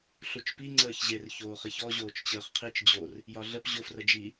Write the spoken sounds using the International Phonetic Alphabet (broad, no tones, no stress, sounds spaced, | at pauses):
ɬ u t͡ʃ p i ŋ͡ǀ əː ç ʑ e r ç oː χ i ç ɔ ʑ oː t͡ʃ t͡ɕ əː χ qʰ i t͡ʃ d͡ʑ o r | j ɒ ɮ ə p ʑ o f r ə d͡ʒ i